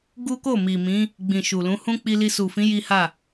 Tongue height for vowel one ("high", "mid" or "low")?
high